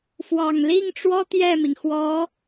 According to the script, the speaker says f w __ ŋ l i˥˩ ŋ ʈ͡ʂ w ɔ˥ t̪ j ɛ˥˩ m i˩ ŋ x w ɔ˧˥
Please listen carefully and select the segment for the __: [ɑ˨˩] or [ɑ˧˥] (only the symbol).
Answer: ɑ˨˩